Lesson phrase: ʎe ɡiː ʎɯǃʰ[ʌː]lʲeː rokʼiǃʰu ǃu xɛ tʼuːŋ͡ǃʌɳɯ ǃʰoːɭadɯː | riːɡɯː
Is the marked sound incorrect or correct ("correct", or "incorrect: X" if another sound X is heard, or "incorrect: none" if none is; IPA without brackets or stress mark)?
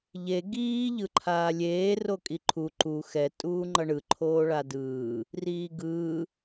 incorrect: aː